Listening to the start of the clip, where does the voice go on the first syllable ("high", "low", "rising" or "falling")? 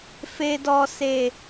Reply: low